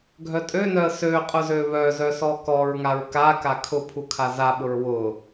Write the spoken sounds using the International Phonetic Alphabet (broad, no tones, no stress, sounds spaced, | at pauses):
ɡʱ œ tʼ ø n œ ə̯ s ø qʼ ʊ z ø β œ z œ s ɔ k ɔ ɹ ŋ a ɹ k a k a kʰ ʊ pʰ u kʰ a z a ɓ ʊ ɹ w ʊ